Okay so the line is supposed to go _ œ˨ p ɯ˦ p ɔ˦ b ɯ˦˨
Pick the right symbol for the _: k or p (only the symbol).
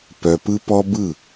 p